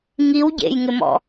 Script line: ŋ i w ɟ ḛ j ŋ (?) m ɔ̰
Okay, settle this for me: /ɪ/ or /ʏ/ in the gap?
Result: ɪ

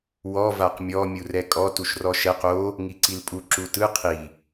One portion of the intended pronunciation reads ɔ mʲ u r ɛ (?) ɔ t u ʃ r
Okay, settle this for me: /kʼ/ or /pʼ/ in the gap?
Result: kʼ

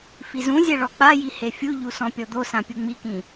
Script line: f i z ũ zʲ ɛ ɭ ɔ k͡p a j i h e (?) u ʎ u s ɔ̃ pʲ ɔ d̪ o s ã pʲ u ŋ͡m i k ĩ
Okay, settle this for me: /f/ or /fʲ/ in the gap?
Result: fʲ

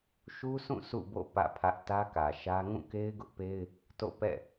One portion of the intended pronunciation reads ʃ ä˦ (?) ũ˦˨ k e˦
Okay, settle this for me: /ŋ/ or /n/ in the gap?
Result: ŋ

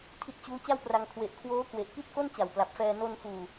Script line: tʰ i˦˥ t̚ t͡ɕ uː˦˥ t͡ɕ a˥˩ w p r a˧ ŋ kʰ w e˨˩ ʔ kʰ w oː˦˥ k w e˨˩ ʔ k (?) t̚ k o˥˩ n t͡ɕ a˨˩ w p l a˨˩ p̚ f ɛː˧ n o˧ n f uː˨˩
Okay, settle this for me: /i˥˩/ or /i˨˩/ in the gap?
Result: i˥˩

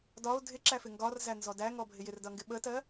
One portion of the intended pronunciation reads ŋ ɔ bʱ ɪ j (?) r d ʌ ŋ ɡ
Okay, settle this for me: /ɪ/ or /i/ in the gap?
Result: ɪ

